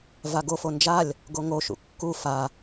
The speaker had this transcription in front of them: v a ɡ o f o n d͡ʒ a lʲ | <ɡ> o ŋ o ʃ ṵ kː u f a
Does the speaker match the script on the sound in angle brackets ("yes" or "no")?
yes